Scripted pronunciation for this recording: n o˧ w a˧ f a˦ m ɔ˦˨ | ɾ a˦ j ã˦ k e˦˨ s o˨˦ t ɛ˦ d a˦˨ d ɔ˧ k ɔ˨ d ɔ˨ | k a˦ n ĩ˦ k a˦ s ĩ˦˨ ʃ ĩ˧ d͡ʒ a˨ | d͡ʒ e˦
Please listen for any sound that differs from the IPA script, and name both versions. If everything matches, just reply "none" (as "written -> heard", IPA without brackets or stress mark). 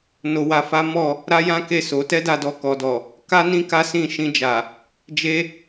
none